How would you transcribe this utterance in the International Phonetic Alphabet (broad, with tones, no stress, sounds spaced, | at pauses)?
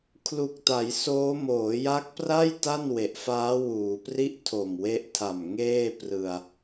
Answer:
kʰ l u˨˩ k̚ t a˩˦ j s oː˦˥ m oː˩˦ j a˦˥ k̚ p r a˥˩ j t a˥˩ n w e˨˩ ʔ f aː˦˥ w uː˩˦ p r i˥˩ ʔ tʰ o˨˩ m w e˦˥ ʔ tʰ a˨˩ m ŋ eː˥˩ p r ɯ˧ a̯